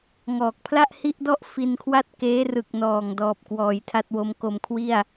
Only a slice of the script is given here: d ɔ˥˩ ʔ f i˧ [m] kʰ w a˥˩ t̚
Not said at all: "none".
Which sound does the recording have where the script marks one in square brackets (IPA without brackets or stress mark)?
n